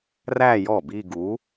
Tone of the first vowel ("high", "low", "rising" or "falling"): falling